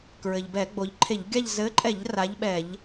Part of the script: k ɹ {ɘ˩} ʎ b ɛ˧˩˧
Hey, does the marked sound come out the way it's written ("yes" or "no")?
yes